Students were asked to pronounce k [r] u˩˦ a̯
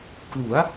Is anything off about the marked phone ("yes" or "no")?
yes